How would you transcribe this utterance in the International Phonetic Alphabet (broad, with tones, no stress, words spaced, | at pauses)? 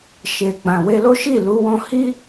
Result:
ʃe˨ɡ͡bã˨ we˧lo˦ʃi˦˨lu˨˦ wɔ̃˧hi˦